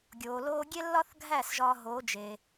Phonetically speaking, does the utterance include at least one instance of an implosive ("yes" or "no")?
no